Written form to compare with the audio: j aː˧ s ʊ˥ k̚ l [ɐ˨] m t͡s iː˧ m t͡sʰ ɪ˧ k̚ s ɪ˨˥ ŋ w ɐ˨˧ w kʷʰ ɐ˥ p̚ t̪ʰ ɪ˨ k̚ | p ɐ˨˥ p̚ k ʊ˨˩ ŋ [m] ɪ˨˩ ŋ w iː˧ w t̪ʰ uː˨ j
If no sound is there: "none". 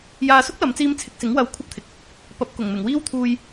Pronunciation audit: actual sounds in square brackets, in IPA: ɐ˨˧, m

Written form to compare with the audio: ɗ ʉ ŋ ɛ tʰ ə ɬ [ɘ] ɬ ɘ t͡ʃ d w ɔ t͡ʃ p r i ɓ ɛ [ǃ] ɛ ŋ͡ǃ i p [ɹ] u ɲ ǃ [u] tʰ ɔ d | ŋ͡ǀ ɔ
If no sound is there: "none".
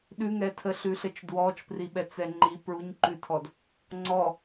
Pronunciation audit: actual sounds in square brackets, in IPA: ʉ, t͡s, ɹ, ʉ

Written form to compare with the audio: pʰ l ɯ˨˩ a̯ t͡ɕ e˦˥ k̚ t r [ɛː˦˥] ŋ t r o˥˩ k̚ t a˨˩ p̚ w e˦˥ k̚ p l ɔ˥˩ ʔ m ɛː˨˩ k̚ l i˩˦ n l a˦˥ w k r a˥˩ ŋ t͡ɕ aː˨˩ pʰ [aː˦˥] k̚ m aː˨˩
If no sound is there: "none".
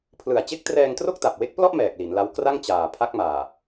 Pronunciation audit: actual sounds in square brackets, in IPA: ɛː˧, a˦˥

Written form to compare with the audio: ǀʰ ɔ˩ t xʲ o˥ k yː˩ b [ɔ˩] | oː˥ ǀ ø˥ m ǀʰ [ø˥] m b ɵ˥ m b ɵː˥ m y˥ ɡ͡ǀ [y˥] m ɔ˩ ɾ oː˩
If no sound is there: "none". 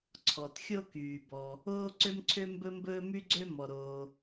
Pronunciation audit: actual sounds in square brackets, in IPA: ɔ˩, ø˥, ø˥

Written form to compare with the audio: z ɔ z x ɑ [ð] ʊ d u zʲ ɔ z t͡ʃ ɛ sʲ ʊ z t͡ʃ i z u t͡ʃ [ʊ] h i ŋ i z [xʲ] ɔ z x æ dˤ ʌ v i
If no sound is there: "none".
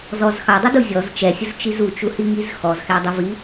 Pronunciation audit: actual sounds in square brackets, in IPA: dˤ, u, x

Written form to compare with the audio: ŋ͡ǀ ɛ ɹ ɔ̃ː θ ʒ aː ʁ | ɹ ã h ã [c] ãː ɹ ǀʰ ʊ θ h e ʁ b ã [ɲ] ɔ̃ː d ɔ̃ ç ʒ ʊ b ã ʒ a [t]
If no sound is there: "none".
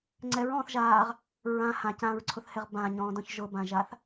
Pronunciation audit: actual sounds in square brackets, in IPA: c, ɲ, θ

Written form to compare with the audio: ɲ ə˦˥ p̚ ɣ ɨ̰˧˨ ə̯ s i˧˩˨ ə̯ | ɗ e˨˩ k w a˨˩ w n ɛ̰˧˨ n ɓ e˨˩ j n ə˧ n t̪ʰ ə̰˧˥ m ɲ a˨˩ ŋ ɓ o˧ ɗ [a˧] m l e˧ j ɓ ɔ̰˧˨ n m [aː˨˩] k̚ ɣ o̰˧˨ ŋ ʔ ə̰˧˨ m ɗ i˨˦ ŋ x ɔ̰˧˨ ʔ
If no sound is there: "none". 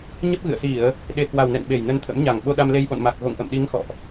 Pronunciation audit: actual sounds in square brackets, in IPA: a˧, a˨˩

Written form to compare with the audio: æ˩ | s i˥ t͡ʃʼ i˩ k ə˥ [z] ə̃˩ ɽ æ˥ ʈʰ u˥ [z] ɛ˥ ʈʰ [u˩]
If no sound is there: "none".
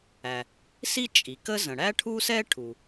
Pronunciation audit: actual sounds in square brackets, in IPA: z, s, u˩

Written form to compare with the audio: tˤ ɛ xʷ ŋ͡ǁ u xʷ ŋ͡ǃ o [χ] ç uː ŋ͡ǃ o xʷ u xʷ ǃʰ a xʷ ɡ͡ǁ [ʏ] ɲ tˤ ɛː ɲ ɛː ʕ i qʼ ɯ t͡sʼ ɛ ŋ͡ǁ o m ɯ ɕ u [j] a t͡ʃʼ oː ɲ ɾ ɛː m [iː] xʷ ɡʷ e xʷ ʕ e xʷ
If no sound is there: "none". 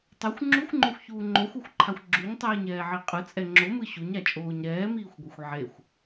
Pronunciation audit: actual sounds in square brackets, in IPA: xʷ, u, ɲ, iː

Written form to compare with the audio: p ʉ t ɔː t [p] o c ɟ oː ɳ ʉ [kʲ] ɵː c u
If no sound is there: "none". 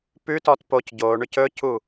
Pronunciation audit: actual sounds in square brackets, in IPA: p, c

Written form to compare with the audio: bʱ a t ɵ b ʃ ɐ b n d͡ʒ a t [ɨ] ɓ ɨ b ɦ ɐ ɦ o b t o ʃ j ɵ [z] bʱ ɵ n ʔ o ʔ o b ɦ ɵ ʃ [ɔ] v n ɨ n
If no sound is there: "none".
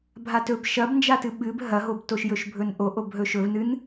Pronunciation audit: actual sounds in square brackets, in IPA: ɨ, ʃ, ɵ

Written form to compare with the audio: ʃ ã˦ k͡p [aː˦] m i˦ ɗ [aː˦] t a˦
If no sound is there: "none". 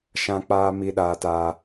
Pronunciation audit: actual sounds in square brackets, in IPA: aː˦, aː˦

